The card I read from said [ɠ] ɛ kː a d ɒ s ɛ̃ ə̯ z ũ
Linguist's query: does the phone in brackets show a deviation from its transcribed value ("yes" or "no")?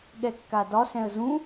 no